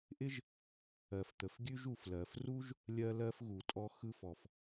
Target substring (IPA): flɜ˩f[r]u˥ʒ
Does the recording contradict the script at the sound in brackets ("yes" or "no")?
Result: no